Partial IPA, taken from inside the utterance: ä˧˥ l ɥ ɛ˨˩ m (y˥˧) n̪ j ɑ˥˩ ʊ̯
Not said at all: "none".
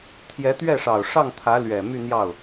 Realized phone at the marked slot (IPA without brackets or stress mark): y˥˧